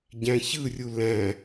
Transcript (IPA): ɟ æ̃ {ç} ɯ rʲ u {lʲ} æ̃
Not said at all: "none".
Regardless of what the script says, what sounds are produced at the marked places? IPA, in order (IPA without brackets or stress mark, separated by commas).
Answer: ç, l